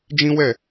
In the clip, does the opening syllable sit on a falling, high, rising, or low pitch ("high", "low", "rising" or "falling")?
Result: high